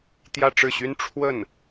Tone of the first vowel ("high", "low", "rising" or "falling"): falling